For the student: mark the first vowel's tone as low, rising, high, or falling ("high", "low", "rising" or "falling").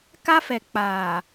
high